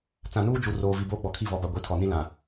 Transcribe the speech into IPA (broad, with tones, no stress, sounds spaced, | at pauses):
t͡s ã˨ n uː˦ d͡ʒ u˨ r oː˨ v i˨ b oː˦ ɡ͡b ɔ˨ kʰ i˦˨ v ɔ˨ b a˨ ɡʷ i˨ tʰ ɔ˨ n ĩ˦ l ã˨